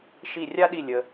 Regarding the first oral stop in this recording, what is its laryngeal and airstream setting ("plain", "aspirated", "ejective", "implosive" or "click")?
implosive